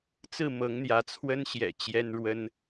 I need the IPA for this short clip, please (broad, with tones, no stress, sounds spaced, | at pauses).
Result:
t͡s ɹ̩˥˨ m ɤ˨˦ ŋ n̪ j ä˨˦ t͡sʰ w ə˦ n ɕ j ɛ̰˨˩ t͡ɕ j ɛ˦ n ɻ w ə˦ n